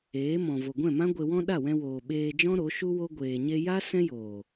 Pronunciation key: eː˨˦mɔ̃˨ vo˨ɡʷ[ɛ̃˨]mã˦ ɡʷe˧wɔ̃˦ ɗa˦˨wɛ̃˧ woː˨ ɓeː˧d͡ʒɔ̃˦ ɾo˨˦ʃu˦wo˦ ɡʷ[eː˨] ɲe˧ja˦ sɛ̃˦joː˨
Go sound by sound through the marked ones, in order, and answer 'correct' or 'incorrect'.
incorrect, incorrect

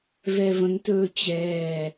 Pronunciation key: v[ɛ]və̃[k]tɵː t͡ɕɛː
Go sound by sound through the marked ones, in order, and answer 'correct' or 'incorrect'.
correct, incorrect

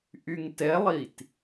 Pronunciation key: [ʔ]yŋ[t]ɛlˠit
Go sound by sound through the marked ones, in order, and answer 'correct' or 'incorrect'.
correct, correct

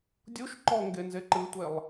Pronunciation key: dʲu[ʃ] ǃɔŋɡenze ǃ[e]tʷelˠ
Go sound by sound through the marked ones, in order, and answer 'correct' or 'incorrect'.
correct, incorrect

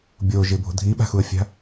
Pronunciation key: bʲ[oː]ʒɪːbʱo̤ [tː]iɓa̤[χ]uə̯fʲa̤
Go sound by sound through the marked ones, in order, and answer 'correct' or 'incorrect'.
correct, incorrect, incorrect

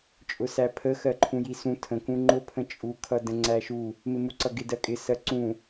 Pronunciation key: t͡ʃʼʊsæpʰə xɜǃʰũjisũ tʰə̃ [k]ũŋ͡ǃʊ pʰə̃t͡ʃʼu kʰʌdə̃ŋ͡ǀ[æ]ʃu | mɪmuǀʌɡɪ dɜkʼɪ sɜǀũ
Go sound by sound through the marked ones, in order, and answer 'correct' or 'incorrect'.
correct, correct

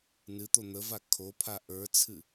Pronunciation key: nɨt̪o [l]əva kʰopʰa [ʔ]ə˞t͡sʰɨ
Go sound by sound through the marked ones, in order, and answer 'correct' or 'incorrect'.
incorrect, correct

